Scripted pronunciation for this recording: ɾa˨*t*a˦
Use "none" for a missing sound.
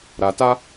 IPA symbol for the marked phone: t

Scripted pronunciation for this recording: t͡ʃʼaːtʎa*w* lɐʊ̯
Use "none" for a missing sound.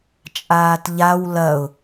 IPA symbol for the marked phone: w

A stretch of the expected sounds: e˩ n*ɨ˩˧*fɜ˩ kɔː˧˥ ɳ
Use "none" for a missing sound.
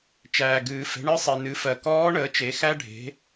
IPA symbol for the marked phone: ɨ˩˧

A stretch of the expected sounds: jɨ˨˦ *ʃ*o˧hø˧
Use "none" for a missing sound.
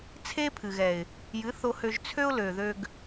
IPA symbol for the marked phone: θ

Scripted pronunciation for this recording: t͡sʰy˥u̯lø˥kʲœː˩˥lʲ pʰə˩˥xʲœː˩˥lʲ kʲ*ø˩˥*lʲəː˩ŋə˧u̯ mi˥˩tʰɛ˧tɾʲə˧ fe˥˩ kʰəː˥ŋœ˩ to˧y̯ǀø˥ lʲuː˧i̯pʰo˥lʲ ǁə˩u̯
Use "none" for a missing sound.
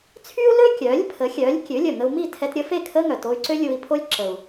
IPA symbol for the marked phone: ø˩˥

